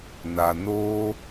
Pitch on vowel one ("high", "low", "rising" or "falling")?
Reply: low